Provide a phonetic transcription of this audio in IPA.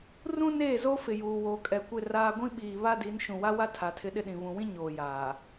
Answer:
r ũ˦ n eː˦˨ z o˦ f ɪ˨ j uː˨ w oː˨ kʼ ɛ˨ kʷ ɪ˦˨ r aː˦ ɡʷ ĩ˦ ɓ iː˨ β a˦ d i˨˦ n ʃ ũ˨ w a˦ w a˦ tʰ a˨ tʰ ɪ˦ ɗ ɪ˦ ɗ ĩ˨ β ũ˨ w ĩ˦ ɲ oː˨ j aː˨

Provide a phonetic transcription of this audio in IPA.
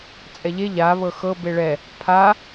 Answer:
t͡sʼ ɛ ʎ e ʎ a β ɤ x ɤ b e ɭ ɛ | pʰ a

